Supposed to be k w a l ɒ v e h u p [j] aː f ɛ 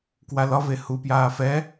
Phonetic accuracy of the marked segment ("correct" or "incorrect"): correct